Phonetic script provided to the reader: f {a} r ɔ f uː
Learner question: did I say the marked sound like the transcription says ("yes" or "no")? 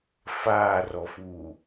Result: no